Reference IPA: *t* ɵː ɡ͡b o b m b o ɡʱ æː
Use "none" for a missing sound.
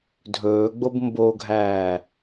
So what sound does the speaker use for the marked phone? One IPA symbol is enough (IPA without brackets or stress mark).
dʱ